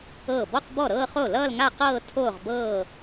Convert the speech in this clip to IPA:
ɤː˥˩ bɔ˥˧qbɔ˥˩ɾɤː˥˧χo˥˩ lʌː˥˧lŋa˥˧qɤː˥˧ tʰoː˥˧ʁbɤː˥˧

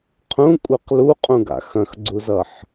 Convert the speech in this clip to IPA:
qʰũkʷʼɛq luqʼũɡa̰ xɐ̃xɡ͡ǀuzʌħ

